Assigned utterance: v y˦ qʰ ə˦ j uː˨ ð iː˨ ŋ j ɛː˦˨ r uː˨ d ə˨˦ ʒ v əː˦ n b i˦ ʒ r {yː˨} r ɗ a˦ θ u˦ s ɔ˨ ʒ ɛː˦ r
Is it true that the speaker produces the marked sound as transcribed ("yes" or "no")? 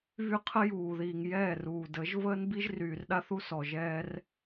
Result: yes